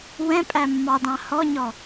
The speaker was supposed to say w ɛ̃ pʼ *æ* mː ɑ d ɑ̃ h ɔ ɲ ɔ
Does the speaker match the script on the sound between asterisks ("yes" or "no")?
yes